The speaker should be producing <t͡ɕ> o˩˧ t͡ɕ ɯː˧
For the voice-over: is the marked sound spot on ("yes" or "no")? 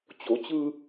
yes